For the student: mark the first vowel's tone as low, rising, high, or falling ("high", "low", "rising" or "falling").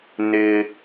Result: low